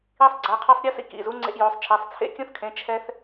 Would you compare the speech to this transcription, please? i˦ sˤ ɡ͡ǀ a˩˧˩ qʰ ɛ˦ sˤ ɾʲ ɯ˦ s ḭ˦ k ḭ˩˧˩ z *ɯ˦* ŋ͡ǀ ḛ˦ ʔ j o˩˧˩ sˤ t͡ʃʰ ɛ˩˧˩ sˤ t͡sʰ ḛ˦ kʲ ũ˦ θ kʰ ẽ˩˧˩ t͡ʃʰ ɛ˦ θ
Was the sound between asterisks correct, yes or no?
no